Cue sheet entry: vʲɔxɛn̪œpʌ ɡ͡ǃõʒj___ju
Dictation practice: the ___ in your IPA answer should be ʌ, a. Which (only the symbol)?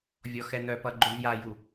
a